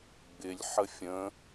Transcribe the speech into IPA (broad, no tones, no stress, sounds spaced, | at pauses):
ɡ͡b ɪ lʲ ħ ə fʲ ə̃